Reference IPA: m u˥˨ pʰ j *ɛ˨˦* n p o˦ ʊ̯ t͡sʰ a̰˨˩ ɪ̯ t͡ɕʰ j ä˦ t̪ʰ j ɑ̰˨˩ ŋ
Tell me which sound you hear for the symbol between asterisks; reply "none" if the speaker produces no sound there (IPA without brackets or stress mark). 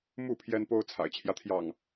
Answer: ɛ˦